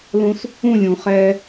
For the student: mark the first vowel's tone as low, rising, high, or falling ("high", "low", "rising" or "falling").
high